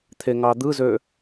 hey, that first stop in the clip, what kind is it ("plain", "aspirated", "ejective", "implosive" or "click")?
aspirated